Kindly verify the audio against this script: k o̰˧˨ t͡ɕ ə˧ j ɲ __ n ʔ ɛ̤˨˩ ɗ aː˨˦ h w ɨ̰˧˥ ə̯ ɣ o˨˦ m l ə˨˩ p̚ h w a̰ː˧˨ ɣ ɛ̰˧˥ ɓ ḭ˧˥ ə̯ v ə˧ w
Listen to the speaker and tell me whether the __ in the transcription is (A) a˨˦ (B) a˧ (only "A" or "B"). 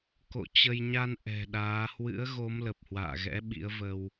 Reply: B